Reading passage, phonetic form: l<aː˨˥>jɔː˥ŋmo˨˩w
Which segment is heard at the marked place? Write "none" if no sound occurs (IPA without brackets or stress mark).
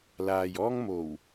aː˨